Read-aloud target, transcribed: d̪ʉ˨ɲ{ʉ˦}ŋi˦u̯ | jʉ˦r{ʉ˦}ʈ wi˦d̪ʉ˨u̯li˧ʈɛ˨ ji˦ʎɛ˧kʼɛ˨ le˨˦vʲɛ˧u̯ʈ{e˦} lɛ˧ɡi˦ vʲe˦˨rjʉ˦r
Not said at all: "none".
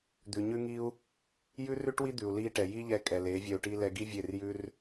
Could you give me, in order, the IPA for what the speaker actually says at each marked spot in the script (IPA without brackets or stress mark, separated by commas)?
ʉ˦, ʉ˦, i˦